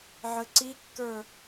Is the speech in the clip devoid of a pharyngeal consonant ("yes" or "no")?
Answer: no